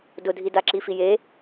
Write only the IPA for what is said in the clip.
d ʊ dʱ i d a ǁ i f i j e

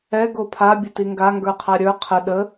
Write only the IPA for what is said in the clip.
ɛ ɡ o pʰ a bʲ ə t i ŋ ɡ a ŋ ɡ ə˞ qʰ a ɾʲ ə˞ qʰ ə ɗ ə

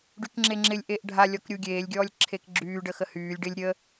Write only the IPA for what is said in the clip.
ɖ y k ŋ͡ǁ e ŋ͡ǁ ɪ lʲ ʔ e ʔ ɖʱ a lʲ ɔ k ɾʲ u ɡʲ eː lʲ ɡʲ ɔː lʲ ǁʰ e k ɡ͡ǁ yː ɖ ə x ə h yː lʲ ɖ ɪ lʲ ɾʲ ə

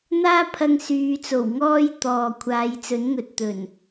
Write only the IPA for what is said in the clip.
n̪ aː˥ pʰ ɐ˧ ŋ s yː˨˧ t͡s o˨˩ w ŋ ɔː˥ j t̪ ɔː˨ kʷʰ aː˨˧ j t͡s ɵ˨˥ n ŋ ɵ˨ t̚ t̪ ɵ˨˩ n

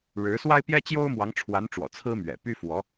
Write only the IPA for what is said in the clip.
ɻ ɻ̩˧˥ s w a˥ ɪ̯ p j ɛ˥ t͡ɕ j o˥ ʊ̯ m w ɑ˧˥ ŋ ʈ͡ʂʰ w a˧˥ n ʈ͡ʂ w ɔ̰˨˩ t͡sʰ ɹ̩˥ m ɥ ɛ̰˨˩ p y˥ f w ɔ˧˥

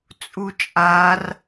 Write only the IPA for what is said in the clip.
t͡sʼ u t͡ʃʼ a r

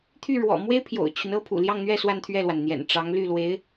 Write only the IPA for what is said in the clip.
t̪ʰ y˥˩ ɻ w ɔ̰˨˩ m w e˥ ɪ̯ pʰ j o̰˨˩ ʊ̯ t͡ɕʰ y˦ n ɤ˥ pʰ ṵ˨˩ l j ɑ˥˧ ŋ n̪ ɥ ɛ˥˧ s w a˥˧ n t̪ʰ ɥ ɛ˥˩ l w a˩ n n̪ j ɛ̰˨˩ n ʈ͡ʂ ɑ˧˥ ŋ l y˥˩ l w e˧˥ ɪ̯

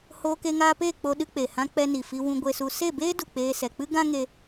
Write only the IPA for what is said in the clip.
h oː˧ k e˧ ŋ aː˧ p eː˦˨ k͡p o˧ ɗ ɨ˧ k͡p e˨ h ã˧ k͡p ɛ˧ n i˨ f i˧ w ũ˧ ɡʷ e˧ s u˧ s e˦˨ b eː˦ d u˨ k͡p eː˧ s ɛ˨ k͡p ɨ˦ ɡ ã˦ ŋ e˧

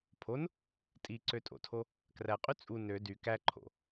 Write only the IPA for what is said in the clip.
pʰ o n | tʼ i ǀ ø tʼ o̰ tʰ o | k r æ qʼ y t͡sʼ u n ø d y k æ ǃʰ o̰

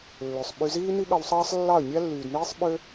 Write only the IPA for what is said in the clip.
lː ø˨ sˤ ɓ y˧ z iː˦ n i˦ ɠ ɑ˧ w sˤ ɑː˦ sˤ lː ɑ˦˨ ə̯ nʲ æ˦ lː yː˨ d n iː˦ sˤ ɓ ø˦

